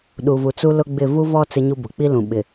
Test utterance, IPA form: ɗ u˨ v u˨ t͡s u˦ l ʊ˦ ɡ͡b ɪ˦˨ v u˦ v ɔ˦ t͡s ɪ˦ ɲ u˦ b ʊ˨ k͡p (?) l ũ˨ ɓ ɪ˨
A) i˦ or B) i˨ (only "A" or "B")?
A